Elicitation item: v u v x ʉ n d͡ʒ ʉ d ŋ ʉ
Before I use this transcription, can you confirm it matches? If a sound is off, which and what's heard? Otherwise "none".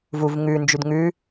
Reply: x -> ŋ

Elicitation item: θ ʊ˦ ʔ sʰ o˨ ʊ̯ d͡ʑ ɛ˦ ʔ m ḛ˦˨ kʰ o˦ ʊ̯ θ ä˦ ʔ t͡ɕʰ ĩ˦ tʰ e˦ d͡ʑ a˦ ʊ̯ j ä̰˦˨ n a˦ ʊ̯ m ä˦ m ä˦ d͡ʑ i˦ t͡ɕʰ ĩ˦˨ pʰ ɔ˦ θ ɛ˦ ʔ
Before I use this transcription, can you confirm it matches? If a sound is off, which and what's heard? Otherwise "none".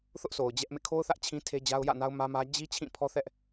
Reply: none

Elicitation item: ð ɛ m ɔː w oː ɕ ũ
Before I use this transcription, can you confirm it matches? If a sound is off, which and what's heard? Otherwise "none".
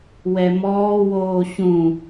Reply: ð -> w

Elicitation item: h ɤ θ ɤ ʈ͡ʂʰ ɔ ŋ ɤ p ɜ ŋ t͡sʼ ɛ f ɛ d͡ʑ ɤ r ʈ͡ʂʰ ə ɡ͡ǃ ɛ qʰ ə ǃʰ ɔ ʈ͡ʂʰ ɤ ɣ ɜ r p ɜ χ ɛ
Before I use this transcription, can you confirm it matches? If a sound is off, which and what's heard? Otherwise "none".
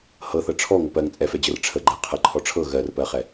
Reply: none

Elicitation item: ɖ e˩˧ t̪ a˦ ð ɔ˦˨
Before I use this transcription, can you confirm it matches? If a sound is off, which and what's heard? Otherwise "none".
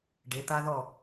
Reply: none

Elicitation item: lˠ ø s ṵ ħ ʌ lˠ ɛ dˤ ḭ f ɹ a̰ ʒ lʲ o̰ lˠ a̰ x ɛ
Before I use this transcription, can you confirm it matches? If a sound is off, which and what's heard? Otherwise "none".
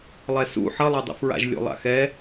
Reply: ø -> ɛ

